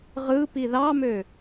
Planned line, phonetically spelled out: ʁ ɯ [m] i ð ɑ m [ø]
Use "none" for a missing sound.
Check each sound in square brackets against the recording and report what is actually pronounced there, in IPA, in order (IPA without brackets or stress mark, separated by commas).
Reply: p, ø